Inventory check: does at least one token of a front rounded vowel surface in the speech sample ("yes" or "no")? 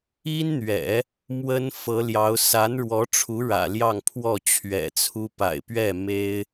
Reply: no